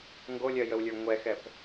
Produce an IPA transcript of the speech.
ŋɡolʲɜjəwlʲə˞ ŋʷɛxɛp

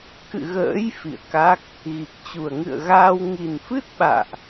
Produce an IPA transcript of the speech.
kɨ̰˧˨ɣə̰ː˧˥j fḭ˧˨ə̯ka˦˥k̚ | ɣi˨˩k̚t͡ɕu˨˩ə̯ ŋɨ̰˧˨ə̯ɣaː˧w ŋi˨˩nfɨ˦˥t̚ɓa̰ː˧˨ʔ

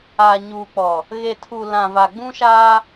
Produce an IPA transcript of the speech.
aː˨ɲuː˨ k͡pɔ˨ | ɣe˨tʰu˨ lã˨va˨ ɡ͡bũ˦ʃaː˦

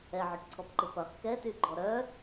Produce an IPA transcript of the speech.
ɛʕʊʈǀʰɔpǃɪ pɐχ kɛtyɡ͡ǃɔ ɾœ

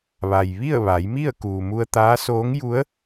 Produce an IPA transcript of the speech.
ʋa˩j ʋi˥˨ə̯ʋa˩˧jmi˥˨ə̯ kuː˩mu˧ə̯t̪aː˧˥ soː˧˥ŋju˧˥ə̯

